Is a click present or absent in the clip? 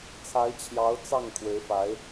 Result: absent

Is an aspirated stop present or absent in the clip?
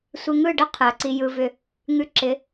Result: present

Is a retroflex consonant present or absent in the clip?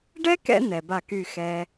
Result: present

